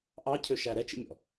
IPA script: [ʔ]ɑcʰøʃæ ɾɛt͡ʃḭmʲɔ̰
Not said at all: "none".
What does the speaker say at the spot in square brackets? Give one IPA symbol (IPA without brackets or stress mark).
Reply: ʔ